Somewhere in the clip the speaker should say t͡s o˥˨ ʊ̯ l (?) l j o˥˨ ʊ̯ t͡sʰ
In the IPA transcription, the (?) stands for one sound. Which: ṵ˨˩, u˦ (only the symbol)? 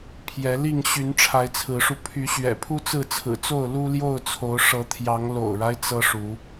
u˦